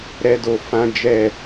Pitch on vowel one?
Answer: high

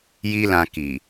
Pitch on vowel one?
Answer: high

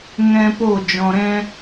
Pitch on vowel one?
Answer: high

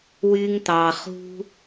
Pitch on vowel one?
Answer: high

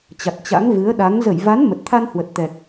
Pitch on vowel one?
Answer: low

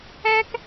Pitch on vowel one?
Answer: high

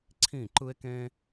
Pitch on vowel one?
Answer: falling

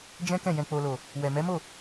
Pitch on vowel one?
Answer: high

